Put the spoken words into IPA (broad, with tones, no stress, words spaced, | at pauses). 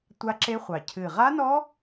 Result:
tʷa˦˥ǁe˦˥χʷɑ˨˩ cʰɨ˨˩ʁa˦˥nɔ˦˥